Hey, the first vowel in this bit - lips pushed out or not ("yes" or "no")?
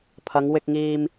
no